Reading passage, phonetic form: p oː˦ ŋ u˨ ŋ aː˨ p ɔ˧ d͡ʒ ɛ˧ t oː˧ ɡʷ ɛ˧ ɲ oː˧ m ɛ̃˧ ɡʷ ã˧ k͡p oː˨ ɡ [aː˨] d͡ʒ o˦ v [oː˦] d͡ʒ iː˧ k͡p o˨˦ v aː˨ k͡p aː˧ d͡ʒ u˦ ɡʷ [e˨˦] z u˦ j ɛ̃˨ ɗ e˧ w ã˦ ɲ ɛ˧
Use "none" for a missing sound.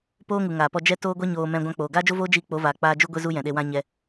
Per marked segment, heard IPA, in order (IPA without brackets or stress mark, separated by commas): aː˦, oː˦, e˦